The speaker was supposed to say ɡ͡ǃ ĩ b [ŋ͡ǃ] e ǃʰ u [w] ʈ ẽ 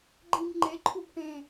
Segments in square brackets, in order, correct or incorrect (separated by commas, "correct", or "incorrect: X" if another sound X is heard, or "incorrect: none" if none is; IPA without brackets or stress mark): correct, incorrect: b